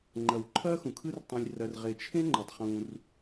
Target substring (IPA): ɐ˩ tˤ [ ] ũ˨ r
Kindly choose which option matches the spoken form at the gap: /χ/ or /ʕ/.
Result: χ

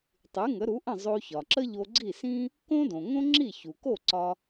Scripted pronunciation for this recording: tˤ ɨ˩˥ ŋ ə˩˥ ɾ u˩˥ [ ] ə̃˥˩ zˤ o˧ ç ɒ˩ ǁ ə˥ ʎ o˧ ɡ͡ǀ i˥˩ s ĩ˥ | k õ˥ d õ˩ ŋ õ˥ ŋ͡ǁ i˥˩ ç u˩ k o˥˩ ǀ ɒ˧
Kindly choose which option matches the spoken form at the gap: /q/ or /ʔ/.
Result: ʔ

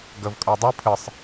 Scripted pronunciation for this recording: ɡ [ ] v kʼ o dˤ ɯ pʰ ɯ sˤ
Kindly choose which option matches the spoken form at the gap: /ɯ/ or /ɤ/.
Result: ɤ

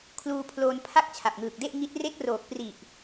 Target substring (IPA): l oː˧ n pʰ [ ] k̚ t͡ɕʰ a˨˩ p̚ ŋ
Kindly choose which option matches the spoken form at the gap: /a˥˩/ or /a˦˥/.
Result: a˥˩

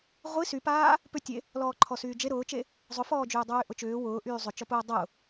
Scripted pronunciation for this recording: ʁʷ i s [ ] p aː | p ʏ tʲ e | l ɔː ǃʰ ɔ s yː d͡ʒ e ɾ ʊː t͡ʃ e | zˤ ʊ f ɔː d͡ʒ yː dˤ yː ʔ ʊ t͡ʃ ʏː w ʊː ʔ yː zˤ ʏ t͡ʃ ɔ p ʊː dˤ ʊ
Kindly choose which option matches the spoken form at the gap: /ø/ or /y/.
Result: y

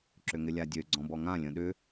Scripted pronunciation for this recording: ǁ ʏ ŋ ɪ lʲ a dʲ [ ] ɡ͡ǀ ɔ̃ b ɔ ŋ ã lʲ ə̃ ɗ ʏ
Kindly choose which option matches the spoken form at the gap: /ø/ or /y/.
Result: ø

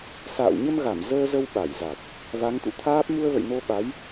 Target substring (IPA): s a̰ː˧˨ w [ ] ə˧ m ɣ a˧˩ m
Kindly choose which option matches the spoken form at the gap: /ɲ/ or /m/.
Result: ɲ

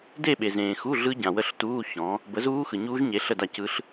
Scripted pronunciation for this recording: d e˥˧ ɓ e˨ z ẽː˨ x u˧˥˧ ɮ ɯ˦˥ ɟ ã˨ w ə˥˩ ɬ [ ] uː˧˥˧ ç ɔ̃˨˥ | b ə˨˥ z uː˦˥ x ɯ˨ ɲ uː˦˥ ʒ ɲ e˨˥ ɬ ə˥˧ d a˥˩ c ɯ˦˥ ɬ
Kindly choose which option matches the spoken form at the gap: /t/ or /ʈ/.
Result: t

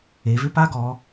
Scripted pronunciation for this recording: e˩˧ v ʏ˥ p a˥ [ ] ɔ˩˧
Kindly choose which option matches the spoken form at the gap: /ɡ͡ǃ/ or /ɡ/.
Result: ɡ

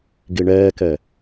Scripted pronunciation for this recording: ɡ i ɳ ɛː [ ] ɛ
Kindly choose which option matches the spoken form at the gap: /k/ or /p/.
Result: k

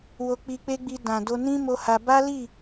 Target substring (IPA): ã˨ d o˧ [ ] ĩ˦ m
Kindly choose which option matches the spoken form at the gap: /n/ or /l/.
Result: n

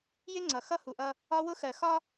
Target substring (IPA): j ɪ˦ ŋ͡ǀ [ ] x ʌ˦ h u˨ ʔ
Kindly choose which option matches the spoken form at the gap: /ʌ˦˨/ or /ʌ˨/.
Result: ʌ˨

